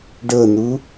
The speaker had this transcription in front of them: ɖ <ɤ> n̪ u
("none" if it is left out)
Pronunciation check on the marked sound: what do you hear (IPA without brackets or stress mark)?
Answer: ɤ